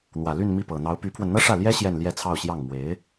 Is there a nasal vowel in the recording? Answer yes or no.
no